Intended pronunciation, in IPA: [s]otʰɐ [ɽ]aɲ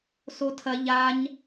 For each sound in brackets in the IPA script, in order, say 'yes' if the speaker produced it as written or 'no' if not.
yes, no

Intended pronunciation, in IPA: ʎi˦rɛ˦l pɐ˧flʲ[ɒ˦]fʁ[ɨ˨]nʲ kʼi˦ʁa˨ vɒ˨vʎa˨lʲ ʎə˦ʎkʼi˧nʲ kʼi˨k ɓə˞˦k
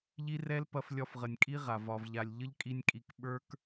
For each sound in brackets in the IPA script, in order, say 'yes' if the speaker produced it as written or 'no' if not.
no, no

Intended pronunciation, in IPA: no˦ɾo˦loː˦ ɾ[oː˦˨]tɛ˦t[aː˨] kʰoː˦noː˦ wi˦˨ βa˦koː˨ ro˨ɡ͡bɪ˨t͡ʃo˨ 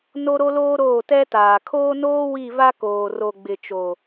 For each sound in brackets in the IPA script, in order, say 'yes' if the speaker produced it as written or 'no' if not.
yes, yes

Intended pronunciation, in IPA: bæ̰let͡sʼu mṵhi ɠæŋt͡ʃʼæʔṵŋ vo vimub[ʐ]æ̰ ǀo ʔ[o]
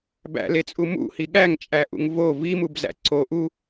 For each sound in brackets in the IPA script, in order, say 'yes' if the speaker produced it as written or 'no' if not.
no, no

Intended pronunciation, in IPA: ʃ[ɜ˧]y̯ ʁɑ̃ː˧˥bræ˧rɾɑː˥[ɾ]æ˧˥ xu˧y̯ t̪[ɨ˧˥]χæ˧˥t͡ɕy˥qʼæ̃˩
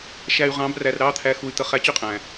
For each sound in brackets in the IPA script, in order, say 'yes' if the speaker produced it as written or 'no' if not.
no, no, no

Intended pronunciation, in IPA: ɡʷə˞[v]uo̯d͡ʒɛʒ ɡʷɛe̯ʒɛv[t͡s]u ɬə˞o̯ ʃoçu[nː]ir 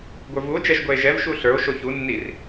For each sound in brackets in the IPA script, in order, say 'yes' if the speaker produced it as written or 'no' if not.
yes, no, yes

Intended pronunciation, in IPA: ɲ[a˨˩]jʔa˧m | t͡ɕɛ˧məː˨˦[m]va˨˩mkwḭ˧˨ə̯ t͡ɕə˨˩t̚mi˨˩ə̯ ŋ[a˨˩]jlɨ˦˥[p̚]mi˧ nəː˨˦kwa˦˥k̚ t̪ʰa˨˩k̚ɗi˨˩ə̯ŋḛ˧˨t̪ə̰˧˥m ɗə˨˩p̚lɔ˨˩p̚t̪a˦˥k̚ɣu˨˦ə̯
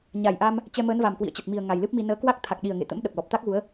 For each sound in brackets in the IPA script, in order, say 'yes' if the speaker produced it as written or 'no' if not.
yes, no, yes, yes

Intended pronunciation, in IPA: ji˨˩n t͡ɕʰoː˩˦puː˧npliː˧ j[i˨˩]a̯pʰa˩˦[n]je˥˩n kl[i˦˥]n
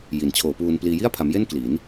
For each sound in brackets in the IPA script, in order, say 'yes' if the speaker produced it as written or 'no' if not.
no, no, no

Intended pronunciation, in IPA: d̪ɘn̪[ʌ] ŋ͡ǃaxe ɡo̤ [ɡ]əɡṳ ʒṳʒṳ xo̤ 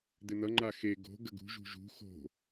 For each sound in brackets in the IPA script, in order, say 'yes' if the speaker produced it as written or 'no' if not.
yes, yes

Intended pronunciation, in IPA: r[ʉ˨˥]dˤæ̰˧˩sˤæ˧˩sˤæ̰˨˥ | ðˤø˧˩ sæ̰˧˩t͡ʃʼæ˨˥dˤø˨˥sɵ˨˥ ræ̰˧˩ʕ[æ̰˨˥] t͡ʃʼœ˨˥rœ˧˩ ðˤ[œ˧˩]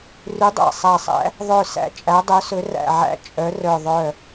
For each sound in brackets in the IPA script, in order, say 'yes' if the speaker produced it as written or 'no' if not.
yes, yes, yes

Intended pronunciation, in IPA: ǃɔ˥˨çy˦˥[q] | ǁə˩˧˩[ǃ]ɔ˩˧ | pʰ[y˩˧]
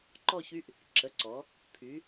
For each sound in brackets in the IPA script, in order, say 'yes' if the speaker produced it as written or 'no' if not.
no, no, yes

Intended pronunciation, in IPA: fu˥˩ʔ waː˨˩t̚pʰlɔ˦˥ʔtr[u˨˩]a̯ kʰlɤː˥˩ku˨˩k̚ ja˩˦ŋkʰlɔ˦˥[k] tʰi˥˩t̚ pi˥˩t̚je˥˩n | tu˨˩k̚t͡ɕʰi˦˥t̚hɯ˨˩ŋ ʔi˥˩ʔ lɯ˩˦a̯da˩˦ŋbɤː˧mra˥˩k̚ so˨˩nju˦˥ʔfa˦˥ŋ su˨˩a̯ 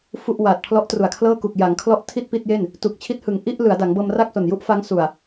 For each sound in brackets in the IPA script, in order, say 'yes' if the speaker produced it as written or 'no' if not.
yes, no

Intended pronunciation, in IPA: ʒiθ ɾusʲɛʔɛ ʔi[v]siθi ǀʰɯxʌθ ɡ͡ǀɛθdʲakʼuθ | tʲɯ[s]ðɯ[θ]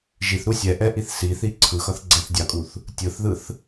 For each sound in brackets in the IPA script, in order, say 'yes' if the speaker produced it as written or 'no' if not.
no, no, yes

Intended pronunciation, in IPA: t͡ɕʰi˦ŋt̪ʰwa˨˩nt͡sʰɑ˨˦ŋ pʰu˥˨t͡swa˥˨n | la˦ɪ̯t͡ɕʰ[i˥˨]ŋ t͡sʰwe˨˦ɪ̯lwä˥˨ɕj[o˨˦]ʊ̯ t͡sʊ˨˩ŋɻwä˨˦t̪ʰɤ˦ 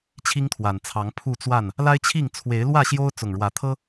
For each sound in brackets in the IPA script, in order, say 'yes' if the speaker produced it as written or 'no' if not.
yes, no

